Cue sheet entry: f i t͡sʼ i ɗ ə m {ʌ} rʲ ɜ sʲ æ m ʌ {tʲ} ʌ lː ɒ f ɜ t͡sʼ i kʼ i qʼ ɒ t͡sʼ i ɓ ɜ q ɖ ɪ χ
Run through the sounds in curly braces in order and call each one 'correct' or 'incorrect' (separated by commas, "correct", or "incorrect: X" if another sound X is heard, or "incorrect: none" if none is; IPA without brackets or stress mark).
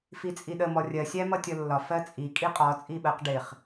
incorrect: ɔ, correct